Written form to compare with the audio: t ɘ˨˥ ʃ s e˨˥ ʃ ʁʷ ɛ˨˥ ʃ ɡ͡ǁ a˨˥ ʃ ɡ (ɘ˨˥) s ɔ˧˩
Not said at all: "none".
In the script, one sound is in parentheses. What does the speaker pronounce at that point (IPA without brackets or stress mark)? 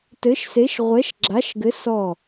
ɘ˨˥